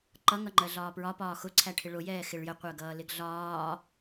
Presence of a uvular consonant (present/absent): present